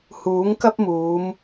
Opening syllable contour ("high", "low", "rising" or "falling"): rising